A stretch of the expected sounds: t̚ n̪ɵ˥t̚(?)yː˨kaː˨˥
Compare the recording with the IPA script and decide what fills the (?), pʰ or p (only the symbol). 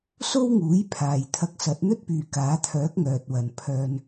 p